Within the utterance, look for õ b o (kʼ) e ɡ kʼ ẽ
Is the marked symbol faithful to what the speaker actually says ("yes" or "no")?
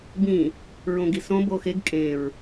no